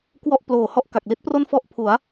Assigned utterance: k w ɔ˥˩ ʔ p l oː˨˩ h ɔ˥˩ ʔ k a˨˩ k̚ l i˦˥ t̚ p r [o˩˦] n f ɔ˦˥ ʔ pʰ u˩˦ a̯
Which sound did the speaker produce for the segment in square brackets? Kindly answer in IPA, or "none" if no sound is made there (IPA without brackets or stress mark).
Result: o˥˩